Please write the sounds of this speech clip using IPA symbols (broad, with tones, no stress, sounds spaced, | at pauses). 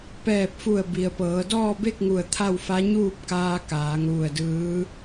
p ɛː˧˩ p̚ f u˧˩ ə̯ b i˩ ə̯ p ɤː˩˧ d ɔː˥˨ b e˥˨ k̚ ŋ u˧˩ ə̯ t̪ʰ a˥˨ w f a˧˥ ɲ uː˥˨ p̚ k aː˧ k aː˩˧ ŋ ʋ u˧˩ ə̯ d ɯː˧˥